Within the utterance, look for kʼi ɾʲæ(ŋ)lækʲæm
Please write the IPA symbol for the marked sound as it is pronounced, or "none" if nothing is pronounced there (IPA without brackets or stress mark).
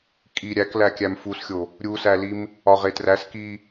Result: k